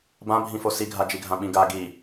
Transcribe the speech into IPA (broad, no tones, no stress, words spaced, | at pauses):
bãbʱĩfo siɡʱad͡ʒiɡʱã ɓĩɡa ɡi